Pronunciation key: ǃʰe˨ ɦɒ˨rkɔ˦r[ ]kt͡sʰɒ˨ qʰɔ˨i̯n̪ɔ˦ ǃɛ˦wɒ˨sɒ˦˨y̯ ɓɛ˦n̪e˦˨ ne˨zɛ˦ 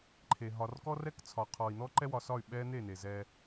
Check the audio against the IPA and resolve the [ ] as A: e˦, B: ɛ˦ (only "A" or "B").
B